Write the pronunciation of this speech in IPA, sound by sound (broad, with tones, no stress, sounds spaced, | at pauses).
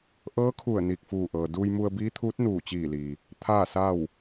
ʔ ɤː˧˥ kʰ u˧˩ ə̯ n iː˧˩ k̚ f uː˧˩ ʔ ɤː˩ d uː˧ j m u˧ ə̯ b iː˧˥ t̪ʰ uː˧˥ t̚ n uː˧˩ t͡ɕ iː˧˩ l i˩ | t̪ʰ aː˥˨ s a˥˨ w